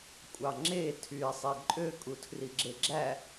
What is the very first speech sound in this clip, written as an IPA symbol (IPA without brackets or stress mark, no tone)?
kʷʼ